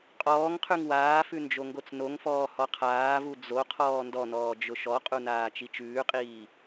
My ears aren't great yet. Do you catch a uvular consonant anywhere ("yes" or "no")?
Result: yes